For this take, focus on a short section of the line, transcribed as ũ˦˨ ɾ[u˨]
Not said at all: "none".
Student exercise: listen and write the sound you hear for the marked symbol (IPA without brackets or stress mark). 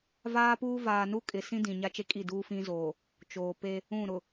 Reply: ʊ˨